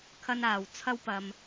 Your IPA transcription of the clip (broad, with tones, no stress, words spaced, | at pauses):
kʰɐ˥naː˨w t͡sʰɐ˥w pɐ˨m